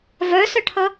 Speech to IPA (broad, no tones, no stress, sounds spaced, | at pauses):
v œ s œ ʈʰ ʌ